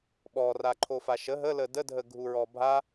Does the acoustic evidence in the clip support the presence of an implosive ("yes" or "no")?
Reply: yes